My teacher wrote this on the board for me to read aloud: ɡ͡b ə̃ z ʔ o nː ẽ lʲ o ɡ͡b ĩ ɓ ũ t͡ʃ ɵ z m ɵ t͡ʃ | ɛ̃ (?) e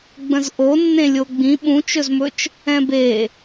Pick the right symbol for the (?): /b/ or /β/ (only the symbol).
b